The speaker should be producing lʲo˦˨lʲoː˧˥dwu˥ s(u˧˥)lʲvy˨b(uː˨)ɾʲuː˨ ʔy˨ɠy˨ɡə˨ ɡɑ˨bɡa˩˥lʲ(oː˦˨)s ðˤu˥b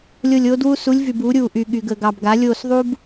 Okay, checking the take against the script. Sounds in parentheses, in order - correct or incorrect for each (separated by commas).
correct, incorrect, correct